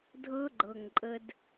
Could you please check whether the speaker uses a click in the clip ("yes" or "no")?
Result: yes